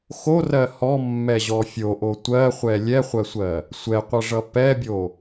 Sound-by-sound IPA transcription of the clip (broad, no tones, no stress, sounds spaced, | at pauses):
x o r ɜ h ɔ mː ɛ ʑ ɔ fʲ o ʔ o tʷ ɜ χʷ ɛ lʲ ɛ χʷ ɜ sʷ ɜ | sʷ ɛ qʷ ʌ ʐ ʌ p ɛ bʲ o